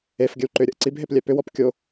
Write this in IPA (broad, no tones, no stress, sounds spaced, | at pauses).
e f ɡʲ ə w ǃ ʏ ɾʲ ə ʔ ǀ i b ɦ e p lʲ ɛ p ʏ w ɔ p kʲ o